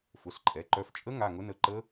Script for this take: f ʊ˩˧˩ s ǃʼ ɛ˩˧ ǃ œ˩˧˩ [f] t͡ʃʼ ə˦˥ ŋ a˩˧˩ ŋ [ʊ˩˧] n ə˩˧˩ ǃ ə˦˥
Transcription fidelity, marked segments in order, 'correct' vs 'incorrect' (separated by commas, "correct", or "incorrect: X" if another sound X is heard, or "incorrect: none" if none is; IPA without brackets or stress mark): correct, incorrect: ʊ˦˥